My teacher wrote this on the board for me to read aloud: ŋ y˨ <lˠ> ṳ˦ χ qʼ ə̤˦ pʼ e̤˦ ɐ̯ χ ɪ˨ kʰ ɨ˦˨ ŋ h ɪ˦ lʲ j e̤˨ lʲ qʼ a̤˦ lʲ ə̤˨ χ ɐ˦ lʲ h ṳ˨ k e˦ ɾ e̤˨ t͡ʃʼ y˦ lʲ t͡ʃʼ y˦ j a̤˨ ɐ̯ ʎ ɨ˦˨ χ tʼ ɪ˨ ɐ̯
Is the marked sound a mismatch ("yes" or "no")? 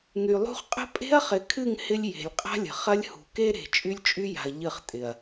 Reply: no